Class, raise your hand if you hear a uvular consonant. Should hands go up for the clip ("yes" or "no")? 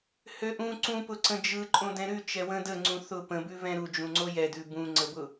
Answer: no